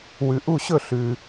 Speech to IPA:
wʉ˧ʔu˥˧ɕɵ˥˧ ɬʉ˧

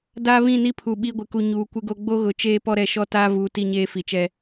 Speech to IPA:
daː˦βĩ˦˨ni˦pʰu˨ ɓi˦ɡʷɪ˨ku˨ ɲuː˨kʷɪ˦ɡo˦ ɡ͡bo˦ɣʊ˨ t͡ʃeː˦pɔ˦ɾɛ˨ ʃɔ˦ taː˦vuː˨ ti˦ɲeː˦fi˨t͡ʃɛ˦

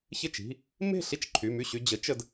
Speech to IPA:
çɪ˥˩t͡ʃi̤˩˧˩ | me̤˥˩ɬi˥˩t͡ʃ ǃʰy˩˧˩my˥˩ɕy˧ d͡ʑə˩˥ t͡ʃə˧d

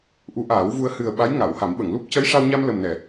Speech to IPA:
ʔu˧˥ʔaː˨˩˦wvu˧ə̯ hɨ˨˩ə̯ ɓa˧˥jŋa˨˩˨wha˨˩˦mɓə˨˩˨ŋ lu˦˥p̚ cə˧˥jʂa˧wɲa˧m lə˨˩mnɛ˨˩˨

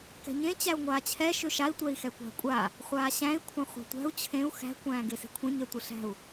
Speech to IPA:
kɛ̤ɲẽ t͡ɕæu̯ŋʷaːt͡ɕʰɛ ʃøʃai̯ tʷɛi̯xɛkʷa̤kʷʼa | χʷaːɕæ̃i̯ kʷʰãχʷæ̤tʷæ̤u̯ t͡ɕʰẽu̯ xæ̤ kʷæ̃ːɡese̤kʷʰẽ ɲɛtʷɨɬæ̤u̯

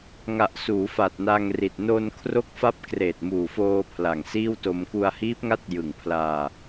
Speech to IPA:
ŋa˨˩ʔsuː˩˦ fa˨˩t̚na˧ŋri˨˩t̚ no˧n kʰro˦˥k̚fa˦˥p̚ kreː˨˩t̚muː˨˩foː˧ pʰla˨˩ŋsiː˥˩wto˧m ku˧a̯hiː˦˥p̚ŋa˥˩t̚ jɯ˨˩ŋpʰlaː˧

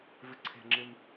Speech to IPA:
vɪǀʰe̤ŋ͡ǁɪm

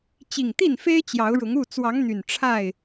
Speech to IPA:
t͡ɕi˨˩ŋt̪i˥˨nfe˦ɪ̯ t͡ɕjɑ˨˦ʊ̯ɻʊ˨˦ŋ u˥˨ t͡swɑ˨˦ŋn̪y˨˩n ʈ͡ʂʰa˥˨ɪ̯

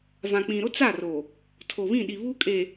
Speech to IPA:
vã˨k͡pĩ˨ ɾʊ˦t͡sa˦˨roː˨ | tʰo˨βĩ˦˨ɗi˨ βu˦kʼeː˨

